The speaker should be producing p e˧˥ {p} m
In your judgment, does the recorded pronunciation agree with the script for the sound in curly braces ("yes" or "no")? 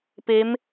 no